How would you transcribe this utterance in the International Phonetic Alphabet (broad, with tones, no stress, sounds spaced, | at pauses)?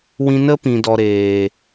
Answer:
w ĩ˧ n ə˦ p ĩ˨ d ɔ˨ ɾ eː˨